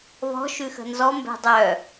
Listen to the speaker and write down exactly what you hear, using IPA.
β ɔ̤ ʃ ʉ x ə̤ n z ɔ m b ɛ̤ dˤ œ

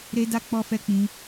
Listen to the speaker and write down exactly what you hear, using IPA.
ɾ e˧ d a˧ k͡p ɔ˧ f ɛ˧ k͡p ĩ˧

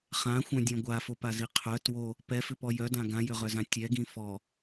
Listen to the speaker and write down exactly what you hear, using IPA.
χ ã xʷ œ̃ dʲ œ̃ ɡʷ a f o p a z i qʰ œ t w o | p ɛ f ʏ p ɔ j œ d ã ɡ ã j ʏ ʁ œ z ã tʲ ɛ ɡ ĩ f ɔ

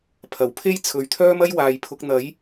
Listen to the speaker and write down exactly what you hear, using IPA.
pʰ ɐ˨˩ w pʰ e˥ j t͡sʰ ɵ˨ ɥ t̪ʰ œː˥ m ɐ˥ j w aː˨ j pʰ ʊ˨˥ k̚ n̪ ɐ˨˥ j

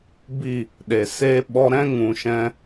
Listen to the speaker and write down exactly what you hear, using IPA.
b i˦˨ | ɗ e˨ s eː˦ ɓ ɔ˧ ɾ ɛ̃˦ ŋ ũ˨ ʃ ɛ̃˧

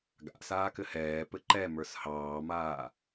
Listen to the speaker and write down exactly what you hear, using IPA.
ɡ a̰ s aː k ɘ h ɛː p ɘ ǃ ɛ m ə˞ s h ɑː m aː

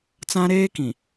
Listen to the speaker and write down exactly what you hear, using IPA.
t͡s ã˦ ɾ eː˦ k ĩ˨

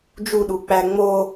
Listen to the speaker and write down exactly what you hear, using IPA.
d͡ʒ u ɗ u k͡p æ ŋ͡m o

